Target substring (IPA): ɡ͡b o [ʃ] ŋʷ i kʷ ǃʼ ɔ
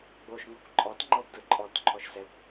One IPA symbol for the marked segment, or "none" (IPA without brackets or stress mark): ʃ